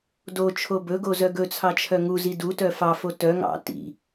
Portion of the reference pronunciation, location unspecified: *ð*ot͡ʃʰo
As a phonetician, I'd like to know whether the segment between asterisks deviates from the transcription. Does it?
yes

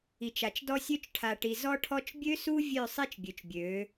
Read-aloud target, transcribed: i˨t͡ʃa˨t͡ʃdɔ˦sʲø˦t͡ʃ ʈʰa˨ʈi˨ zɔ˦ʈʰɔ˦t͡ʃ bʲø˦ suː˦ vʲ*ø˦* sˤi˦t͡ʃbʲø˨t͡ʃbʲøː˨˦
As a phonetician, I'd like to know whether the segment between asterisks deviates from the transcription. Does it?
yes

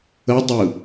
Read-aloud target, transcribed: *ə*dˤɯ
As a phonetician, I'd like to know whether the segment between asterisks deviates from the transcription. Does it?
no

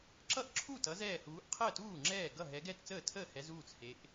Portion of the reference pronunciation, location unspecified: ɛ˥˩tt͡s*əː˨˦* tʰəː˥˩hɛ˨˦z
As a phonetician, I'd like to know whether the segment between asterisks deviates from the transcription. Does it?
yes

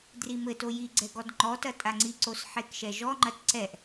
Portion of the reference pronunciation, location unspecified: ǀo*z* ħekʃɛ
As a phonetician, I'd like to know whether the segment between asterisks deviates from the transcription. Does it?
yes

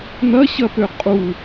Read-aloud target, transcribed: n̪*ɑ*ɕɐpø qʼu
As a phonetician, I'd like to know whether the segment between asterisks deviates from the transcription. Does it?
yes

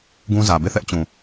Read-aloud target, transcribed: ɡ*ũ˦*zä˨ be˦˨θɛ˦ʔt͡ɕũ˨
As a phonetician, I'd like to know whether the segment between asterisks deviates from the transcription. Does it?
no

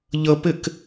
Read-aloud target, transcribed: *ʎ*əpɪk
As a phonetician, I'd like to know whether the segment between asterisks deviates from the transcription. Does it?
no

